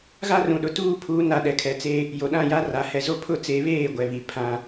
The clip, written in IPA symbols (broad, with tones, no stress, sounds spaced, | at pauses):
ɣ a˦ r ũ˨ ɗ ʊ˨ t uː˦˨ pʰ uː˨˦ n a˨ ɗ ɛ˨ kʰ ɛ˨˦ t͡s e˦ | j o˨ ɗ ã˦˨ j a˦ r a˨ h ɛ˨ z o˦ pʰ ʊ˦˨ t͡s e˨˦ β eː˦˨ ɡʷ ɛ˨ β i˨ pʰ ã˦